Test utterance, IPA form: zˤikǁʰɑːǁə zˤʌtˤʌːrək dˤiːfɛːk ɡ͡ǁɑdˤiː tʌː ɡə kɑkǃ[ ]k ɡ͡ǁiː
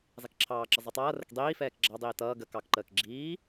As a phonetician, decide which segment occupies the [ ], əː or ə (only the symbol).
əː